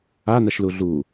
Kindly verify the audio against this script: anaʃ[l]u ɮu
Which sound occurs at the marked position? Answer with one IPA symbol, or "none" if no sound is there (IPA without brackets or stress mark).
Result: l